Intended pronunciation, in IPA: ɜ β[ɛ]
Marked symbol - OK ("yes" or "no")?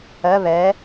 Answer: yes